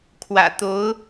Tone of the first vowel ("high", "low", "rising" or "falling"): low